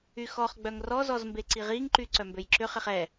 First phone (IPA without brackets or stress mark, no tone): y